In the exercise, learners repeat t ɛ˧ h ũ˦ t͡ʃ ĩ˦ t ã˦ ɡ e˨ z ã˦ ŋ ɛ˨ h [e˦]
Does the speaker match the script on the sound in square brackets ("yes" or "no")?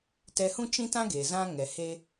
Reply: yes